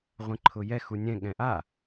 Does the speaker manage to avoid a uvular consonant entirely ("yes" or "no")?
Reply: no